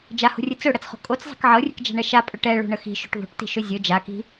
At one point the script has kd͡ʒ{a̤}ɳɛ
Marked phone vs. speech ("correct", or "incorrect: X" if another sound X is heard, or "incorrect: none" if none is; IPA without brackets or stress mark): correct